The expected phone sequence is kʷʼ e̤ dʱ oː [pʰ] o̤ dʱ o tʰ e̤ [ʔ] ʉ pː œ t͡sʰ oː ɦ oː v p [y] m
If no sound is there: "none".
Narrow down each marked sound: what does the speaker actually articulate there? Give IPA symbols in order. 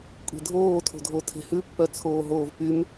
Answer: tʰ, h, y

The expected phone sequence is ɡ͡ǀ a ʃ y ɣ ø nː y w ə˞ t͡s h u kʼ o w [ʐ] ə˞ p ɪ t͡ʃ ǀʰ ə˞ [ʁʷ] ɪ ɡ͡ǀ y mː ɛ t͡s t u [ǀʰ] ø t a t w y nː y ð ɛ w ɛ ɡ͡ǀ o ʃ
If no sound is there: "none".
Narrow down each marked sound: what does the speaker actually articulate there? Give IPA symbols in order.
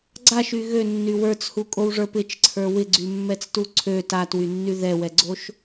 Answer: ʐ, w, ǀʰ

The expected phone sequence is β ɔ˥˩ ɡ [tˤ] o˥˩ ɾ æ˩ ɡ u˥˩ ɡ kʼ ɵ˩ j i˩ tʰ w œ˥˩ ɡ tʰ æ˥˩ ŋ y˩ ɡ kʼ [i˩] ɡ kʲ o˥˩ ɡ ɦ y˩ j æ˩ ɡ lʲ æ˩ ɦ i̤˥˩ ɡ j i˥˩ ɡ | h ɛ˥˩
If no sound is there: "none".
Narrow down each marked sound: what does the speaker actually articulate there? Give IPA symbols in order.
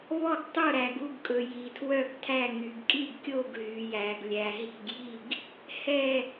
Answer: tˤ, i˥˩

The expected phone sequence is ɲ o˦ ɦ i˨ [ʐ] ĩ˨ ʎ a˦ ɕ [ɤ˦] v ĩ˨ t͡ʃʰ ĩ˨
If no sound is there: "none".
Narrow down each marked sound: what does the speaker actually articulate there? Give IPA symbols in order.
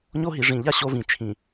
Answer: ʐ, o˦

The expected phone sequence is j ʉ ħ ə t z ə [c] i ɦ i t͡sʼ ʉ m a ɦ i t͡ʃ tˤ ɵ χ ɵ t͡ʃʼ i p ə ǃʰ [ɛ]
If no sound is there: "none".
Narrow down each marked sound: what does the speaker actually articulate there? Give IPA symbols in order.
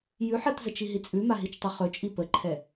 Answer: t͡ʃ, ɛ

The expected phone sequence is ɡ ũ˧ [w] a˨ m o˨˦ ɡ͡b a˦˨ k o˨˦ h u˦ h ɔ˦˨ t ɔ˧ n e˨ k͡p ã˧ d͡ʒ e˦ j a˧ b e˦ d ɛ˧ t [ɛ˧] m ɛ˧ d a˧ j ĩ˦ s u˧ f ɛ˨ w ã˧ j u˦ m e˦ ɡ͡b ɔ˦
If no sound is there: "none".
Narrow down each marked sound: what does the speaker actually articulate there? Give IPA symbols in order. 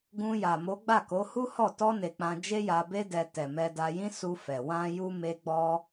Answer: j, ɛ˨

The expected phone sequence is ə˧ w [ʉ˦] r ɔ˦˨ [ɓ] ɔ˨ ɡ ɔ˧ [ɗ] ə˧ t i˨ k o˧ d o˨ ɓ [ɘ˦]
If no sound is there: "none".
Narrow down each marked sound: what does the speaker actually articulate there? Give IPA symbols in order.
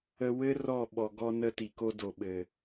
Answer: ɘ˦, ɓ, n, ɘ˨

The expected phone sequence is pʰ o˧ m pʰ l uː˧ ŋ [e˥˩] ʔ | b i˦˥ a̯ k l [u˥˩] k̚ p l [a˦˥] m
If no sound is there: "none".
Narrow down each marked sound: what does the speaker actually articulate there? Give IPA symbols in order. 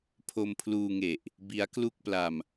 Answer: e˨˩, u˥˩, a˧

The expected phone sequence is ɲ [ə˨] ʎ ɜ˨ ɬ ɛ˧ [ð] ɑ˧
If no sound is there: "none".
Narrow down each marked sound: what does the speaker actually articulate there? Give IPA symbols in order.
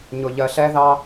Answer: ʊ˨, ð

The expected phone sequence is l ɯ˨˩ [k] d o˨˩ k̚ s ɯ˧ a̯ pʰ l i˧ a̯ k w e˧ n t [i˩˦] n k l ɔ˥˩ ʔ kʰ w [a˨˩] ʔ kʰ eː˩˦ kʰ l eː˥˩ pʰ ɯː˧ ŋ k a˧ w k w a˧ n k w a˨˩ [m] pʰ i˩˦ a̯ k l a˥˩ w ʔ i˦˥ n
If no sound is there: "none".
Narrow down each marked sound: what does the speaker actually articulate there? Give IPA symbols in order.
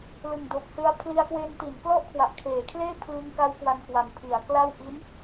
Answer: ŋ, i˩˦, a˨˩, m

